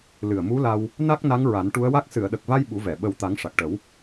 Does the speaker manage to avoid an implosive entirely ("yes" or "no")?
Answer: no